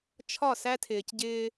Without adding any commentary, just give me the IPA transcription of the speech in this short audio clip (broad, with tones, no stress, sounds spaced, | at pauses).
t͡ʃʰ ɒ˦˨ s æ˦ tʰ ɪː˨ c ɟ ɪː˦